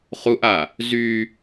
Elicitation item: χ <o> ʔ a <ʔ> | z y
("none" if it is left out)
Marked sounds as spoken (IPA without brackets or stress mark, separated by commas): u, none